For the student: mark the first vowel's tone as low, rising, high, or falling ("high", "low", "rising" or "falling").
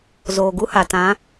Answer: low